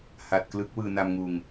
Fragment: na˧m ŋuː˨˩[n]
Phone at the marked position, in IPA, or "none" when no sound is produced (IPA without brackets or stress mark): ŋ